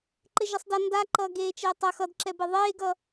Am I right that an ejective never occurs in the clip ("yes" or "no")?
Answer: yes